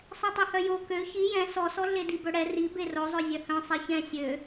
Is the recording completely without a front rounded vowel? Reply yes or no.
no